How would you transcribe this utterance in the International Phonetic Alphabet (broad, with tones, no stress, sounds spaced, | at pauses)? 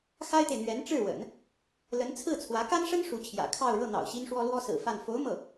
x a˥ ɪ̯ t̪ e˨ ɪ̯ n̪ ɥ ɛ˧˥ n ʈ͡ʂ ɻ̩˥˩ w ə̰˨˩˦ n | l ə˧˥ n t͡sʰ ɹ̩˥˩ t͡sʰ w ä˧˥ k a˥ n ʂ ə˥ n ʂ u˧˥ t͡ɕʰ j ä̰˨˩ kʰ ɑ˥˧ ʊ̯ ɻ ɤ˥˩ n̪ ɑ̰˨˩ ʊ̯ ɕ i˥ n ʂ w ɔ˥ l w ɔ˥ s ɹ̩˨˩ f a˥˩ n f o˧˥ ʊ̯ m ɤ˥˩